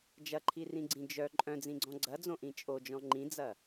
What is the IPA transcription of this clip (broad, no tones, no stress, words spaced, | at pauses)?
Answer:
d͡ʒɐǃʰirĩɡ͡ǀĩ d͡ʒœ ǃʼœ̃d͡zĩɡ͡ǀɔ̃ ɡ͡ǀɐd͡zõʔĩ t͡ʃʼod͡ʒɔ̃ ŋ͡ǃĩd͡zɐ